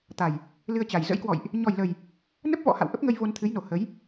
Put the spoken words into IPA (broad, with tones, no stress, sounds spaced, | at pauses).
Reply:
t̪ a˨˩ j | l ɨ˧ ə̯ t͡ɕ a˨˩ j z ə̰˧˥ j k w ɔ̰˧˨ j ʔ | ɲ ɔ˨˩ j l ə˨˩ j | n ə˦˥ p̚ v ɔ̰˧˥ h a̰˧˨ w ʔ ə˦˥ p̚ ŋ ə˧ j v o˧ n t̪ʰ ɨ˨˦ j n o˨˩ h ə˨˦ j